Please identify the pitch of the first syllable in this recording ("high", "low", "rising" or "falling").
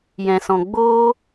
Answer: low